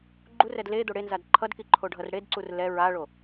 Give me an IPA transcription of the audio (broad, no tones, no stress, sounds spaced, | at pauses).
ɡ͡ǃ u r ɛ d l e d̪ o ɽ e n z a d ǃʰ ʌ d k i ǃʰ o ɖʱ ʌ r ɽ e d ǀ u r l ɛ ɹ a ɭ o